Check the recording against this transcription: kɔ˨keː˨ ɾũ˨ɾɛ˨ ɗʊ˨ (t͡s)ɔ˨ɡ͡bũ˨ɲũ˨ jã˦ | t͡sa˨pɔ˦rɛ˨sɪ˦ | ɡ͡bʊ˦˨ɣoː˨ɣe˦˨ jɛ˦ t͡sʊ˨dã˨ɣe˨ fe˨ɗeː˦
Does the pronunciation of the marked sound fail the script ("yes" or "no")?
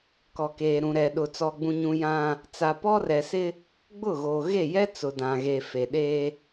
no